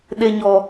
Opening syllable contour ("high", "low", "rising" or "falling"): low